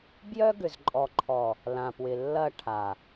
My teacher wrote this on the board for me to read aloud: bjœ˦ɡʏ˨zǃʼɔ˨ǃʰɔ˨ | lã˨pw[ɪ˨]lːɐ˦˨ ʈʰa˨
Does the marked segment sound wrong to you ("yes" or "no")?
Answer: no